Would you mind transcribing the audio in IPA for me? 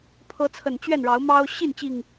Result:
pʰɤ˨˦t͡sʰə˨˩n t͡ɕɥɛ˥˨nɻɑ˨˦ʊ̯ mɑ˦ʊ̯ ɕi˥˨nt͡ɕi˨˩ŋ

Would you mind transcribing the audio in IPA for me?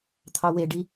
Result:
t̪ʰɑweɖi

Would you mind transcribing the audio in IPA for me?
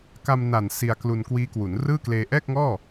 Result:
ka˧mna˨˩n si˧a̯klu˧nkwiː˦˥kwu˩˦n rɯː˥˩kleː˧ ʔɛː˥˩k̚ ŋɔː˥˩

